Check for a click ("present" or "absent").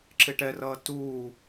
present